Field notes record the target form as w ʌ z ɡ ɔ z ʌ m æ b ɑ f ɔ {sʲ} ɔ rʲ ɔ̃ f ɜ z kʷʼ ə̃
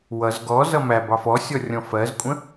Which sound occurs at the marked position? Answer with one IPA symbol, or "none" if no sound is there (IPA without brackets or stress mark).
sʲ